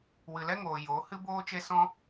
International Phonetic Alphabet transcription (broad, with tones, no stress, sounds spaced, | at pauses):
w ɨ˨ l ɛ˦ ŋ oː˨ j o˨˦ h ɨ˦ b oː˦ t͡ʃ e˦ s ɔ̃˦